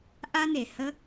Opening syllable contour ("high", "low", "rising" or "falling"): high